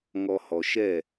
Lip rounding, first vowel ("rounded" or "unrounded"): rounded